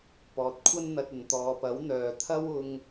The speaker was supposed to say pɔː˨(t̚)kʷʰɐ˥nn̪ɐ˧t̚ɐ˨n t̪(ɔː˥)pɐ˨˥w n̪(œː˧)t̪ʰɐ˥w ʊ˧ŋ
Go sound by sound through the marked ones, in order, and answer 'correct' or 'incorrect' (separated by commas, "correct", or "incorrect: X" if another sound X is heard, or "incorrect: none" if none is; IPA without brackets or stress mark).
correct, incorrect: ɔː˨, incorrect: œː˨